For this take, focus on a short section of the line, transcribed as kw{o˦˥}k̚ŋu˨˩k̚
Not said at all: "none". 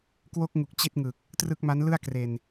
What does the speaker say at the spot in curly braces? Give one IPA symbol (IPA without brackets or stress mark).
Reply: o˦˥